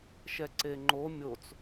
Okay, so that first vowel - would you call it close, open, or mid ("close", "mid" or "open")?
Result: mid